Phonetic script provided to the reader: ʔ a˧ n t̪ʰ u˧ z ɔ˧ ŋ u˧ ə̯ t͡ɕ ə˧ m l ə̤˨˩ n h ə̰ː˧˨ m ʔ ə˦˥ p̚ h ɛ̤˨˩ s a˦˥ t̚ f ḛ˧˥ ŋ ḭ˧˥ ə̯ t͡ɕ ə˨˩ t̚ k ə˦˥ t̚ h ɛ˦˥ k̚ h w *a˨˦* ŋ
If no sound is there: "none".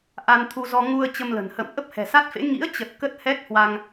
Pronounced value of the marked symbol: a˧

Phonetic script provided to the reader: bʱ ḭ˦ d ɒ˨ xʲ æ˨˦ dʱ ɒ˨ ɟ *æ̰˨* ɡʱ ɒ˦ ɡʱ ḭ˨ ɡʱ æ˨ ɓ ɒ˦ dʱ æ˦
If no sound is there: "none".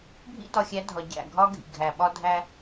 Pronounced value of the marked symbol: æ̰˦˨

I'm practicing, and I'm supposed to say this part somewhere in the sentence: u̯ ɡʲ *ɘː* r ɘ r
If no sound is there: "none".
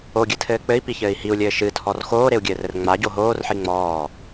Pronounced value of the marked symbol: ɘː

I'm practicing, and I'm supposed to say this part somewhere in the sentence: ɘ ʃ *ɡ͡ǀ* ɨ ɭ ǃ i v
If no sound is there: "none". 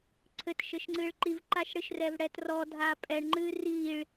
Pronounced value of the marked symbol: ŋ͡ǀ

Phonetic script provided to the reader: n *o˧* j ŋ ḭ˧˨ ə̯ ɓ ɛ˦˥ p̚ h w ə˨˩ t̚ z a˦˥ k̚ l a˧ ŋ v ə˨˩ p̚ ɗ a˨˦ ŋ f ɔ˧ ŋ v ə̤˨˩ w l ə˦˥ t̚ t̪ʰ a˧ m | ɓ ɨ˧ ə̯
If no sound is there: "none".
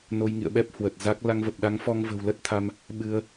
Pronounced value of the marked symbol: o˧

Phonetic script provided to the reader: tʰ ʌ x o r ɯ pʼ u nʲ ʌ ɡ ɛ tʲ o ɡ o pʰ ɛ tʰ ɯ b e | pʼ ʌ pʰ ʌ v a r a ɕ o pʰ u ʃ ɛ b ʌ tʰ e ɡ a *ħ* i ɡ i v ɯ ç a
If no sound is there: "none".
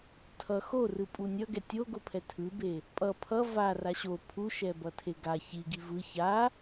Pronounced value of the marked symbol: ç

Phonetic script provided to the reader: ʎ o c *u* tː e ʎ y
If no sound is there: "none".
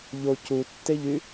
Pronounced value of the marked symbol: u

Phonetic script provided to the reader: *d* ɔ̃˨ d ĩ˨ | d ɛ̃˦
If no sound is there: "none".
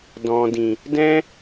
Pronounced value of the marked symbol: d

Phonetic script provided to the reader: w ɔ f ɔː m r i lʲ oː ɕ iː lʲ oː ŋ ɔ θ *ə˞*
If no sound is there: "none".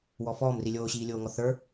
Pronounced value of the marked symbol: ə˞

